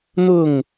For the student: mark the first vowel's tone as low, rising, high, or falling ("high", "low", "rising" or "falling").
falling